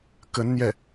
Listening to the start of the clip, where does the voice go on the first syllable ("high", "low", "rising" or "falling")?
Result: rising